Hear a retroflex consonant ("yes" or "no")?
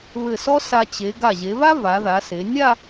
no